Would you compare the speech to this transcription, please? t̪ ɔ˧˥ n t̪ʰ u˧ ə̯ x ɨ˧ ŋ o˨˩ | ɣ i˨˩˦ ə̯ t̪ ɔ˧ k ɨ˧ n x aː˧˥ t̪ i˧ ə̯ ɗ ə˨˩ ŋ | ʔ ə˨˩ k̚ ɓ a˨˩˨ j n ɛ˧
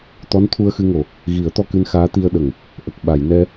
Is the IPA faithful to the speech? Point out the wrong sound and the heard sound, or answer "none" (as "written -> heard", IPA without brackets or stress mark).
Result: none